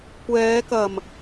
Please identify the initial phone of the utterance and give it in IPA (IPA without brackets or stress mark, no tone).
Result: kʷ